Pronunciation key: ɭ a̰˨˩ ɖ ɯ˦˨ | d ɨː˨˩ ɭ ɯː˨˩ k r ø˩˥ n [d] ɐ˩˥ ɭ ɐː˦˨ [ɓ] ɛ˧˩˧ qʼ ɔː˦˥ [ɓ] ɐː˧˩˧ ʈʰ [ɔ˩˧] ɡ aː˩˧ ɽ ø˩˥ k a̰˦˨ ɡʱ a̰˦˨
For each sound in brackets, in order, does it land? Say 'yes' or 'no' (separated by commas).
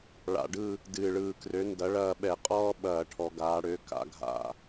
yes, yes, yes, yes